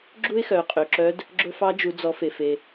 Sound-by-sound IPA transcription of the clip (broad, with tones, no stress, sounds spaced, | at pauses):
ɡ͡ǁ u˥ ɪ̯ x œ˩˧ qʼ ø˩ ǁ œ˧˥ d | ɡ͡ǁ ɵ˧ f ɑ˧˥ d͡ʒ u˩˧ d͡z ɔ˩˧ f e˩ f e˩